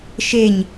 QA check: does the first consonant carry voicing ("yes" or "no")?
no